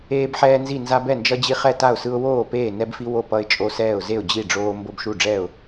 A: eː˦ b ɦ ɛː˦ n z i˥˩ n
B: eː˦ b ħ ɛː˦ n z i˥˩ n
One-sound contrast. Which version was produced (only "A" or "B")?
B